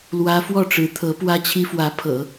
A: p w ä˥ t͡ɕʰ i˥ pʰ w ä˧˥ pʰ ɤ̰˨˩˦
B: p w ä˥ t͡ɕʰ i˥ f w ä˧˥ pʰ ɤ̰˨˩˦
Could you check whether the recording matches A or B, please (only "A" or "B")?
B